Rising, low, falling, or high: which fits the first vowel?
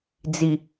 low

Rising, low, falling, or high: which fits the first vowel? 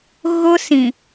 high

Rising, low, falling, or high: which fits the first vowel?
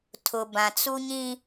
low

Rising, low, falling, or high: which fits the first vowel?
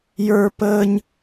high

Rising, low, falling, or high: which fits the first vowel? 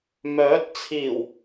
rising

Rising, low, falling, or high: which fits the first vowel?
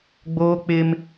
high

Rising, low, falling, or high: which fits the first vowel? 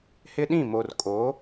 high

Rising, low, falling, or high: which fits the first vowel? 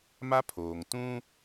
high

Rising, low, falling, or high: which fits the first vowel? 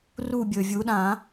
falling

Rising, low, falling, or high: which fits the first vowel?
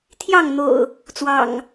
falling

